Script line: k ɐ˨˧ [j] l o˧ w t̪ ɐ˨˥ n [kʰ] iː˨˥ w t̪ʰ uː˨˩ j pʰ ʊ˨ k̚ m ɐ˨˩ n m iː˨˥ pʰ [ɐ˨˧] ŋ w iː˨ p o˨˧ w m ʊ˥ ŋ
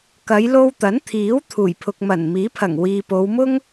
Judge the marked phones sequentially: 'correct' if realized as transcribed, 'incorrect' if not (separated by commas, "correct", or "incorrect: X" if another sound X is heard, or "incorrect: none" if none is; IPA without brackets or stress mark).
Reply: correct, incorrect: t̪ʰ, incorrect: ɐ˨˩